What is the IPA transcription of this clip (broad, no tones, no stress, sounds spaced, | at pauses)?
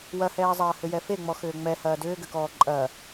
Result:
w ɐ h ɛː zˤ ɐː h ʏ j ɛ f e ŋ͡m ɔ x ʏː ŋ͡m ɛ h ɐː d ʏː ɡ ʏ k ɔː ǃʼ ɐ